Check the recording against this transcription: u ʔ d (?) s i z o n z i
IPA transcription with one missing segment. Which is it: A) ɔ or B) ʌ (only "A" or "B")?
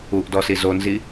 A